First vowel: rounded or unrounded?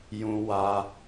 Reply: rounded